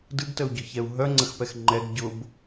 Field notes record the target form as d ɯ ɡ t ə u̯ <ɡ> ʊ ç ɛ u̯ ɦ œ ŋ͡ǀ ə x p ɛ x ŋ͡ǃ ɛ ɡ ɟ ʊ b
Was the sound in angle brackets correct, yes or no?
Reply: no